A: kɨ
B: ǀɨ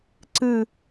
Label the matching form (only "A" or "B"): B